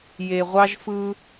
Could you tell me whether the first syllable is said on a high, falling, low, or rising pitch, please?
low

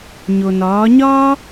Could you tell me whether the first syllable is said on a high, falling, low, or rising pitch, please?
low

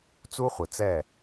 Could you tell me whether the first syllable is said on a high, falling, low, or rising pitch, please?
high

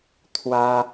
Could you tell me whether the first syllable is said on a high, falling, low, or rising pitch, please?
high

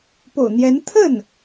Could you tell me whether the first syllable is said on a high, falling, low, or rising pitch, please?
low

